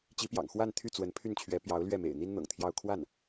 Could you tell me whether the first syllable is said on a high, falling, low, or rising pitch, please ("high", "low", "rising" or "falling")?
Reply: rising